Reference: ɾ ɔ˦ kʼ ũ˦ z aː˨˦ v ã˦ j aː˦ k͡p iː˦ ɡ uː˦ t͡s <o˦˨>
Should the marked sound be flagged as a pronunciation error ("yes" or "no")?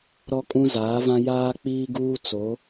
yes